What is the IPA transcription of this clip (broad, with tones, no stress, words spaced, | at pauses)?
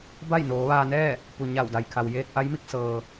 ba˥˨jnoː˩˧ʋaː˧nɛː˥˨ | pu˩ɲa˧˩wda˩jkʰa˩w jeː˧k̚ʔa˧˥jmi˧k̚ sɤː˩